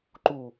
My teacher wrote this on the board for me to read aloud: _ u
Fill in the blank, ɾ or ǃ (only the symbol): ǃ